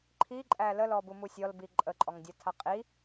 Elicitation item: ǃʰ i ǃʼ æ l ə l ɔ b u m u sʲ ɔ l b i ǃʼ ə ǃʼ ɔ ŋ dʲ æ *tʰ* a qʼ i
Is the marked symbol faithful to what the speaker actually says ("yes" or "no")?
yes